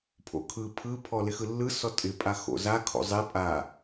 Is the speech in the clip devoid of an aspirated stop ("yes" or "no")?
no